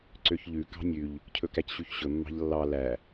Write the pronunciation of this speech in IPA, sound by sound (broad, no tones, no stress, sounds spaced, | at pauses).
ǀ ø ç ʎ ʉ k ɑ̤ nʲ ʉ ʎ | cʰ ɵ k æ c ɕ y ç ɕ ɵ mː ɑ̤ ʎ lː ɑ l æ